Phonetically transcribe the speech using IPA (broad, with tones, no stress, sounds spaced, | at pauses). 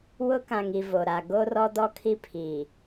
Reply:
w ʊ˦ k ã˨ ŋ i˨ v o˨ ɾ a˨ ɡ o˦ r ɔ˦ d ɔ˦ kʰ i˦ pʰ iː˨